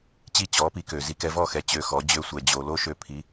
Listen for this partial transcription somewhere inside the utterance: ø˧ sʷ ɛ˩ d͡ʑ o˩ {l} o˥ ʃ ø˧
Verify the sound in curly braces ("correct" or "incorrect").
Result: correct